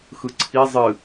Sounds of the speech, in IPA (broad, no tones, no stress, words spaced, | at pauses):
xɯǀʰi zˤɨ